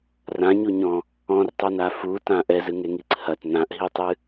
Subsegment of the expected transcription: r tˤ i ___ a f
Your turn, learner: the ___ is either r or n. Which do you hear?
n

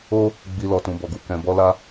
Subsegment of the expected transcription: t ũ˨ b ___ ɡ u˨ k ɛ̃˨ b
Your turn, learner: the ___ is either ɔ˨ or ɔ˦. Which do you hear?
ɔ˨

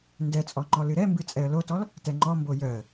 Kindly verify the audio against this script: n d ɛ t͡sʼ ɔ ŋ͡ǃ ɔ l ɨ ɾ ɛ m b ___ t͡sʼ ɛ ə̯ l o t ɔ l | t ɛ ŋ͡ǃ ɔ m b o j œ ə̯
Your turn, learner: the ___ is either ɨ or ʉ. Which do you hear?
ɨ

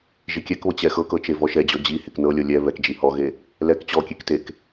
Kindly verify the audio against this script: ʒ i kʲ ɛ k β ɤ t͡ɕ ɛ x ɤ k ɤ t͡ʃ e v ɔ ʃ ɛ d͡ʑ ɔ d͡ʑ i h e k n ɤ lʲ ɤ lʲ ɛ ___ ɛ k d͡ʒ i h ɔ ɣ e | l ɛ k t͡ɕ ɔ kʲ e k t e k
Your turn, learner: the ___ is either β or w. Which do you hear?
β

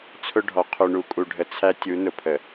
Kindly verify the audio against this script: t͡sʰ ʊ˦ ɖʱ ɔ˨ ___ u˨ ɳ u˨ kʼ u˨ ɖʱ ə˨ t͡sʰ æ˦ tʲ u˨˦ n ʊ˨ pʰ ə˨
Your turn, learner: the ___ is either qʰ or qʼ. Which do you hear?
qʰ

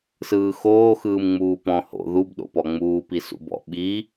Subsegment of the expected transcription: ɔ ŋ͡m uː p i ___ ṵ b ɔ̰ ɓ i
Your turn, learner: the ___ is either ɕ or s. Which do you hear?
s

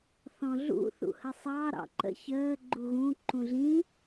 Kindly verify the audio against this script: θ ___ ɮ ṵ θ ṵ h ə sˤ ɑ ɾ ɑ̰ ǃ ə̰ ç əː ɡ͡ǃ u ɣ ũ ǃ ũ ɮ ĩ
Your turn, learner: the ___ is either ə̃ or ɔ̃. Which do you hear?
ɔ̃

